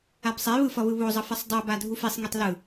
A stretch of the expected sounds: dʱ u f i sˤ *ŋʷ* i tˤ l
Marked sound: incorrect: ŋ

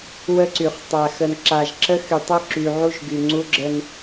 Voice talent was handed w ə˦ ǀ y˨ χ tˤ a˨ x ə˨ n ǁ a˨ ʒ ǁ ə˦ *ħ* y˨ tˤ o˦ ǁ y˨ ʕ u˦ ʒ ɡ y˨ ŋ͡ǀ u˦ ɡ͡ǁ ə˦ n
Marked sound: incorrect: x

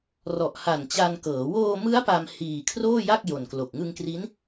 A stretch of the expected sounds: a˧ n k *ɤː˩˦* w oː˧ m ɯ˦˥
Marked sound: correct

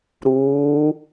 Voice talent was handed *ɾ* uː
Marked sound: correct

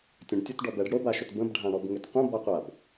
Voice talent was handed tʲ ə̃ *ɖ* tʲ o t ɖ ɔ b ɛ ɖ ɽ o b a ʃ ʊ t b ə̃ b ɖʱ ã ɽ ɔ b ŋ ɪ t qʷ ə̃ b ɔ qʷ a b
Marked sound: correct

